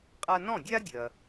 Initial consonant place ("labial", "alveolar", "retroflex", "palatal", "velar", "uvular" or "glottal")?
uvular